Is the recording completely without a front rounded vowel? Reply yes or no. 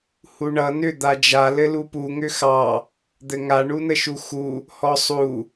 no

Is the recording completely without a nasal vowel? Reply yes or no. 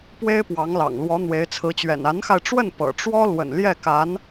yes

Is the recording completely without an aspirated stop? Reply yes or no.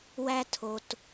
no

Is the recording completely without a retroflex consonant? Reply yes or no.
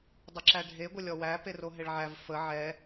no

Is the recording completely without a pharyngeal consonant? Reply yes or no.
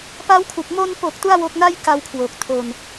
yes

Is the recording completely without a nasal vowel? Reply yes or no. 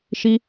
yes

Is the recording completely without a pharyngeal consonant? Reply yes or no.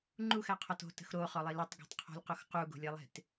yes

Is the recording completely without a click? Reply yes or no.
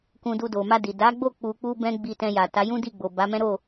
yes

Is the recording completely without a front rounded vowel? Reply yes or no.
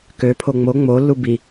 no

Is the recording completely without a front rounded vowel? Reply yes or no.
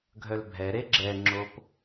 no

